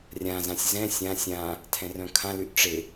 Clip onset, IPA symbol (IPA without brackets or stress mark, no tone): rʲ